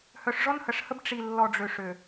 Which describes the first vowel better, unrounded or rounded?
rounded